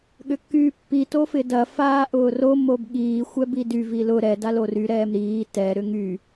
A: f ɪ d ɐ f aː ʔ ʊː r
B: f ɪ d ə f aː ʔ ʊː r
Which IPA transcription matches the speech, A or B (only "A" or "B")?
A